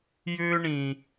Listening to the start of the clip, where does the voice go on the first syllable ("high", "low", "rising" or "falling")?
high